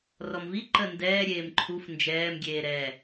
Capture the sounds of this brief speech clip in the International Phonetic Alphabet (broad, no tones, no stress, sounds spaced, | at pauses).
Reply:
r ɔ m v i ǃ ə n d ɛː ɾʲ eː m ǃʰ u f n d͡ʒ ɛː m ɡʲ eː ɾ ɛ